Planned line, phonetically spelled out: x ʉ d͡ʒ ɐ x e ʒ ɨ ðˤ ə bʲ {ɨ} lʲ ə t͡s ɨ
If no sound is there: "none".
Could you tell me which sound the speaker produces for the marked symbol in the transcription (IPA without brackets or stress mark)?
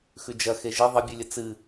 ɨ